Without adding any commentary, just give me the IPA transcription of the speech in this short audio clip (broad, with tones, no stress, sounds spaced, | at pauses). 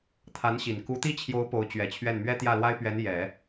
t̪ʰ a˧˥ n ɕ i˨˩ n k u˧˥ t̪ i˥ t͡ɕʰ j o˧˥ ʊ̯ p o˧˥ ʊ̯ t͡ɕ ɥ ɛ˨˩ t͡ɕʰ ɥ ɛ˥˩ n m ɥ ɛ˥ t̪ j ä˥˩ l w a˥ ɪ̯ p ɥ ɛ˧˥ n j ɛ˨˩˦